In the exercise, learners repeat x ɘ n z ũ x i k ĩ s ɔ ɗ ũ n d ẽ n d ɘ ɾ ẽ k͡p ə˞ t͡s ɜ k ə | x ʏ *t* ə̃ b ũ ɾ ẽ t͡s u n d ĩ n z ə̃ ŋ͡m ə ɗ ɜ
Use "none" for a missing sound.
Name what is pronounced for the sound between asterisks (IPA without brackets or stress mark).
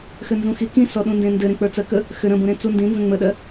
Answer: ɾ